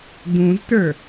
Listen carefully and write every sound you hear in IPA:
d ũ z t ə˞

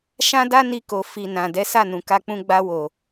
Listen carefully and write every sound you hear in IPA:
ʃ ã˦ d a˦ n i˧ k o˨ f i˨ n ã˨ d ɛ˨˦ s a˦˨ n ũ˨ k a˧ k͡p ũ˧ ɡ͡b a˧ w o˨

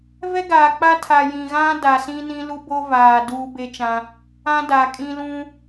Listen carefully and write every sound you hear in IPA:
v ɛ˦ ɡ aː˨ k͡p a˦ tʰ a˨ j ĩ˨ ɣ ã˦ d a˨ s ĩ˦ n ĩ˦ l u˦ b o˦ v aː˨ d uː˦ b e˦ t͡ʃ ã˦ | ã˦ d a˨ kʼ ĩ˦ l ũ˦

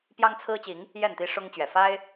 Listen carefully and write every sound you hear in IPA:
p j ɑ˦ ŋ t͡sʰ ɹ̩˦ t͡ɕ i˨˦ ŋ | j ɛ˥˨ n t̪ i˦ ʂ ʊ˦ ŋ t͡ɕ ɥ ɛ˨˩ f a˦ ɪ̯

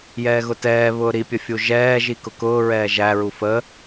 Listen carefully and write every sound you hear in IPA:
j ɛː ɣ ʊ t ɛː β ʊː ɾ i pʲ ə fʲ u ʒ ɛː ʒ i k ʊ k ʊː ɹ ɛː ʒ æ ɹ u f ə

